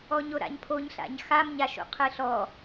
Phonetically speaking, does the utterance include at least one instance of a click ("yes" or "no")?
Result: no